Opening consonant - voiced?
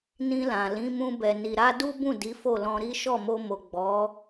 yes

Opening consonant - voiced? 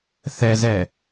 no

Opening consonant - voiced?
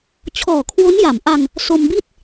no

